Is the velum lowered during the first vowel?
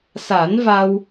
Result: no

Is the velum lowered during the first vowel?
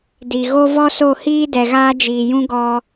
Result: no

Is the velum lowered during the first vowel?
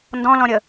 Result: yes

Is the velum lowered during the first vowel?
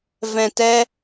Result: yes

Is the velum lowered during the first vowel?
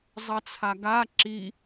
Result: no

